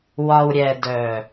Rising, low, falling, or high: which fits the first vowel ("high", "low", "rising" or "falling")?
low